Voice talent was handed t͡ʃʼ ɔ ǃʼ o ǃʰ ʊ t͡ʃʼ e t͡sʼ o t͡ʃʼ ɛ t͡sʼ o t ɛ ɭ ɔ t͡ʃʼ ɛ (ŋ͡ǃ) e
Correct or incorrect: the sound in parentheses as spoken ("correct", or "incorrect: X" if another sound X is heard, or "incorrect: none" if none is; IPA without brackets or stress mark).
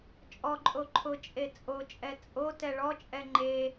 correct